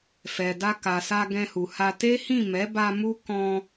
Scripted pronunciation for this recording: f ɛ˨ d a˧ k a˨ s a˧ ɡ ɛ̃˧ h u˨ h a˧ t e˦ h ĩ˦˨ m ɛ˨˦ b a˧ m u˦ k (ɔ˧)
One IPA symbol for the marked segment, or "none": ɔ̃˧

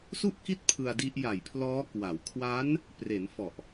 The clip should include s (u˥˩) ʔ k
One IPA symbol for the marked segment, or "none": u˥˩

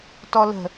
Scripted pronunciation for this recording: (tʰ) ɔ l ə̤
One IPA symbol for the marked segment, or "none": t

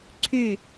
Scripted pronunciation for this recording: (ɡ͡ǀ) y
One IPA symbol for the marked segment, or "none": ǀʰ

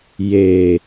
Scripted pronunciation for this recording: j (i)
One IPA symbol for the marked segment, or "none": e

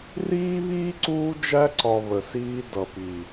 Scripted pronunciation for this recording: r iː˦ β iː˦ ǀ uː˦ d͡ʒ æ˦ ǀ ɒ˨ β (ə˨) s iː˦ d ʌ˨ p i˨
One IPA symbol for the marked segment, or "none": ə˨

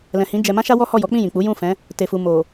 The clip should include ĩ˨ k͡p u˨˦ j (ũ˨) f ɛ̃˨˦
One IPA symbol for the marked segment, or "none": ũ˦˨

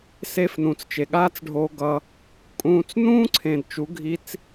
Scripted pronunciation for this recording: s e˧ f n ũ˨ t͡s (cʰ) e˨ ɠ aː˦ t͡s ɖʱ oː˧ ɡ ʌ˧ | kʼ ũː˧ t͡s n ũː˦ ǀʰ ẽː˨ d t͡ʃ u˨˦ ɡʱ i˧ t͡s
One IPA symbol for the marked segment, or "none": t͡ʃ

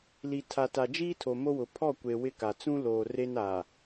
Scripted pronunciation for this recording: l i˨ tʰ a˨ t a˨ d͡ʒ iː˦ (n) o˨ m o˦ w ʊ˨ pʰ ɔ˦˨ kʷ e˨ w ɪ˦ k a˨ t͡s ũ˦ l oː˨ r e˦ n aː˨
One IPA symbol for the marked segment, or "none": tʰ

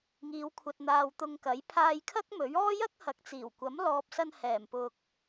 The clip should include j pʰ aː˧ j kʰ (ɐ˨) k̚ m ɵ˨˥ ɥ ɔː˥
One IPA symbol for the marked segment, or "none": ɐ˥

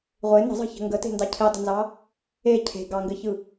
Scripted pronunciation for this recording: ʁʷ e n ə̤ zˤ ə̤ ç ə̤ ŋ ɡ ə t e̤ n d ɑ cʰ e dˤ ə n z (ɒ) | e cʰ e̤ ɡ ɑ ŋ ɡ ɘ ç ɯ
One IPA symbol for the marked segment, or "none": ɑ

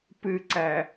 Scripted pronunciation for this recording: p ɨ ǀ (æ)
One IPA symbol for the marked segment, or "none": æ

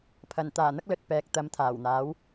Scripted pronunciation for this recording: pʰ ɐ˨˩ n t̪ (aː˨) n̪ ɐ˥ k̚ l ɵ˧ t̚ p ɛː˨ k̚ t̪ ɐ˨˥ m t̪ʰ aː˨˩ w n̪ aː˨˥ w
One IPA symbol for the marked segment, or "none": aː˨˩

